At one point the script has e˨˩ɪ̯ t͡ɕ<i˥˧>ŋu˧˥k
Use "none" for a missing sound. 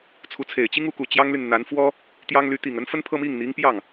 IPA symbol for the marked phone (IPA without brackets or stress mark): i˥